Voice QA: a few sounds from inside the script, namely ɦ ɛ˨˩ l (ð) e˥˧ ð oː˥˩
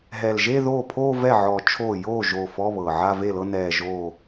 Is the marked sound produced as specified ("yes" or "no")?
no